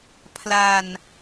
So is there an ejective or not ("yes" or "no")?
no